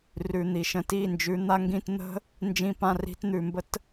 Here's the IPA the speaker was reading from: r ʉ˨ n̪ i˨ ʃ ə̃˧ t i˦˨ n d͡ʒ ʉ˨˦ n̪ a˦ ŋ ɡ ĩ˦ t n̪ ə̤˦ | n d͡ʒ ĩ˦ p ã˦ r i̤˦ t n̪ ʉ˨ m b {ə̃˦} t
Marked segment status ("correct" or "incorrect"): incorrect